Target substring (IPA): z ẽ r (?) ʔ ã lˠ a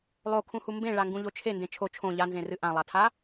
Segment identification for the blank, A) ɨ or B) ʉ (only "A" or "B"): A